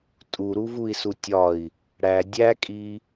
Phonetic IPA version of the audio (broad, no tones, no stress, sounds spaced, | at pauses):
tʼ u ɾ u v u i̯ s u tʲ ɒ i̯ | ɽ æ dʲ æ kʼ i